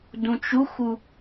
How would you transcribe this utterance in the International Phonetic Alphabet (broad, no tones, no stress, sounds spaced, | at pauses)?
d ũ t͡ʃ u x u